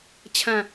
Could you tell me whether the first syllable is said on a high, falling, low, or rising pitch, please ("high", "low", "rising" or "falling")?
falling